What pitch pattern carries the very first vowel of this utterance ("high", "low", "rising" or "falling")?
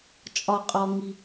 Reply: high